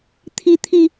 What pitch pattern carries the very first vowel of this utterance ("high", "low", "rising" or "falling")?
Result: high